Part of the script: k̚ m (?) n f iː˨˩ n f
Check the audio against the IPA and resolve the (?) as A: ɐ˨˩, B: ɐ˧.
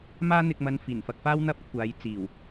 B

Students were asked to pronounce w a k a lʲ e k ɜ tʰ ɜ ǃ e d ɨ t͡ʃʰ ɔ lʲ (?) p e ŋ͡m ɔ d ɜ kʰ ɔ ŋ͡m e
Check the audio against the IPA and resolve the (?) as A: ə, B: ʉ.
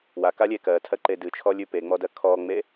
B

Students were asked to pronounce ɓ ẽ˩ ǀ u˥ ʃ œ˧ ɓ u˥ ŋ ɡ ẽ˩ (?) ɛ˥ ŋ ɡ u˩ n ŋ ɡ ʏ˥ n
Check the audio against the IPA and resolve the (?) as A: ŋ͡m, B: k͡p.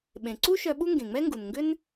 A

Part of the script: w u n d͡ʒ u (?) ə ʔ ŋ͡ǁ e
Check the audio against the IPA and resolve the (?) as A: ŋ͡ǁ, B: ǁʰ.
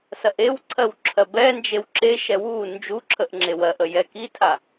B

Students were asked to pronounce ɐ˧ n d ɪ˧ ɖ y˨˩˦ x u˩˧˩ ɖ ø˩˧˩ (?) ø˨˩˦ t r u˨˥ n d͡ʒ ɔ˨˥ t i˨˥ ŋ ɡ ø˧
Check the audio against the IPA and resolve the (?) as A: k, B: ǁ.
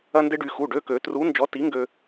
A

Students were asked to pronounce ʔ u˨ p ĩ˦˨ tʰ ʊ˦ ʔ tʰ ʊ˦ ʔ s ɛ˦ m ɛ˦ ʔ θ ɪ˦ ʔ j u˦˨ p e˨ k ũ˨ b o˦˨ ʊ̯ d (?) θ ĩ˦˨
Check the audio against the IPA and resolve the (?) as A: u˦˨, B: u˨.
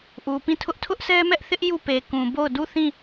A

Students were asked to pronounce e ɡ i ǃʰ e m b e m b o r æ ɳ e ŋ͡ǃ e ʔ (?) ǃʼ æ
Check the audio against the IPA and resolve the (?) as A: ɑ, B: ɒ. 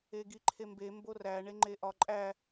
B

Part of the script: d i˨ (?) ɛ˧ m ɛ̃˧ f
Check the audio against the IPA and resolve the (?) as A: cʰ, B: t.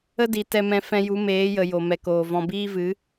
B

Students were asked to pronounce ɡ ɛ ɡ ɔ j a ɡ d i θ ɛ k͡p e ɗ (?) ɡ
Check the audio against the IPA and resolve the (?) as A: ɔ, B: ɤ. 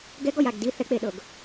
B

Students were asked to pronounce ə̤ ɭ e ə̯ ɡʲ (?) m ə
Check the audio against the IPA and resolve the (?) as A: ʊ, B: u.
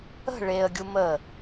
B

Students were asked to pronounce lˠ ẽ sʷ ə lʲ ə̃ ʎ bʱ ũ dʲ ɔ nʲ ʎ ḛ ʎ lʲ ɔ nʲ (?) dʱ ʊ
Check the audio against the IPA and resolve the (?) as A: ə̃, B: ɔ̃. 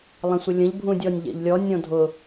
B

